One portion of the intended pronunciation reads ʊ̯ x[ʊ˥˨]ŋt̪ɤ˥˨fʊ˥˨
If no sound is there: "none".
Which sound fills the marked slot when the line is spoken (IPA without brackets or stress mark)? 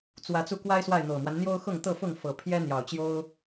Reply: ʊ˥˨